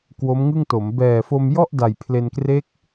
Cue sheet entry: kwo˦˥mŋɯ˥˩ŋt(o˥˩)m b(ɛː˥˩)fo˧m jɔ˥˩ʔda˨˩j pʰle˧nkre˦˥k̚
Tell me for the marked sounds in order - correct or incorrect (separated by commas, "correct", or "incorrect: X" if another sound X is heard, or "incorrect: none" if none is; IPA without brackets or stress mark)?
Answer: incorrect: o˩˦, incorrect: ɛː˨˩